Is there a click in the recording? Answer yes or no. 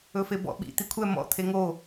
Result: no